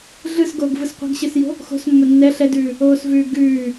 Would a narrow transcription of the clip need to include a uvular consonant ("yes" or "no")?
yes